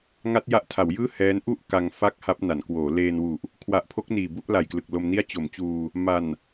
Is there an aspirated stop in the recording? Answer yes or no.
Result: yes